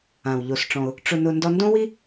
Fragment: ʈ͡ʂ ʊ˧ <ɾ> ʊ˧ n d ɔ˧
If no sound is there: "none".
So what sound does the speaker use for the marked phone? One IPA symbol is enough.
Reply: n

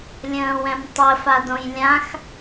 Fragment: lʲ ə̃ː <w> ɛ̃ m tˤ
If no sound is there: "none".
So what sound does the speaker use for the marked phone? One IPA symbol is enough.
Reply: w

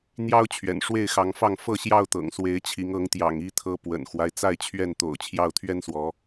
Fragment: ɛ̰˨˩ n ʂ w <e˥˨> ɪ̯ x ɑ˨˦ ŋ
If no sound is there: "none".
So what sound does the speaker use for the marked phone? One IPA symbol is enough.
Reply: e˥˨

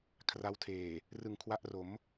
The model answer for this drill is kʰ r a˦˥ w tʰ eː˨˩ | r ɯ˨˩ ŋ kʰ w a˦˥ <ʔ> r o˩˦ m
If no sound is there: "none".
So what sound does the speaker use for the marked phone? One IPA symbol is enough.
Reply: ʔ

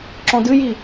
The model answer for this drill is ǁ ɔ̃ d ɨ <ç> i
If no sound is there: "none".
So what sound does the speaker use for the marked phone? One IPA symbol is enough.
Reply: j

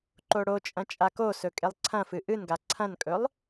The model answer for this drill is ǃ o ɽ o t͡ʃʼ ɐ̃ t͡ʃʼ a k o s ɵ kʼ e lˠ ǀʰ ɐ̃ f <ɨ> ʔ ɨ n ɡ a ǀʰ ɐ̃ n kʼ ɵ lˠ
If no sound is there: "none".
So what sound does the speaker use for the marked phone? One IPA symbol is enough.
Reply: ɨ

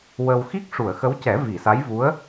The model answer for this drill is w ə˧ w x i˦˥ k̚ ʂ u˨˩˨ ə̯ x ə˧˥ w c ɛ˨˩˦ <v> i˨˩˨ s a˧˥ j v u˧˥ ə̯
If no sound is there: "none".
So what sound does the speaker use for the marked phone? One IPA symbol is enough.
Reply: v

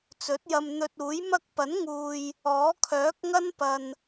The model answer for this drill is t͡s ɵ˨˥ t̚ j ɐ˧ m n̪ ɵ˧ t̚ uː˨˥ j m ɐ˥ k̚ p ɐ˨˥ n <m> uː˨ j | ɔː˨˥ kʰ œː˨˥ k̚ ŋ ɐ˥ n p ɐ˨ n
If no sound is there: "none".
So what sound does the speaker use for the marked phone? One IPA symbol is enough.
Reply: ŋ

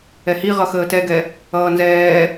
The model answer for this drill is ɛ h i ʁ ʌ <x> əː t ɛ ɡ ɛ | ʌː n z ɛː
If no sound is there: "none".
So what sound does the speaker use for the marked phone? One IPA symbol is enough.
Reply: x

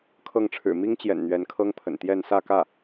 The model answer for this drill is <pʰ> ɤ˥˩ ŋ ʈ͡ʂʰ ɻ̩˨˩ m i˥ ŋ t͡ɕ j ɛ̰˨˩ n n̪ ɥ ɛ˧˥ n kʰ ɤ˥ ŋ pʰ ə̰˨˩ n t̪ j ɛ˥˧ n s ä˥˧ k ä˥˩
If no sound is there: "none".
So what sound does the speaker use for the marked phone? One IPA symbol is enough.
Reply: kʰ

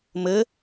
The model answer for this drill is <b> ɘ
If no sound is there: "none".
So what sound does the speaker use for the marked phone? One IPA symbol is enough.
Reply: m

